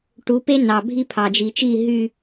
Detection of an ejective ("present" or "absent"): absent